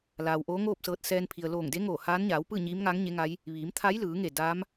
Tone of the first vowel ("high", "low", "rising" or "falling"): low